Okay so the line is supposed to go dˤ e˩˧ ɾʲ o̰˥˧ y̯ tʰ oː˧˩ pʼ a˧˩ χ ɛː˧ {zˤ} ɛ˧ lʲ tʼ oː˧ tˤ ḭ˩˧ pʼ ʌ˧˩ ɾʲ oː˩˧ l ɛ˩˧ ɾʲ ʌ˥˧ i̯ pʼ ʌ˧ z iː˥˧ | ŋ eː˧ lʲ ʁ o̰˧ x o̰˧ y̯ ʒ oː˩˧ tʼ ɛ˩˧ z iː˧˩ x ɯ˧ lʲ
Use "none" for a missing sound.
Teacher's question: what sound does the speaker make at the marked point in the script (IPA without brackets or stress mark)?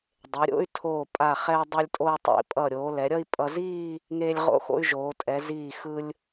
dˤ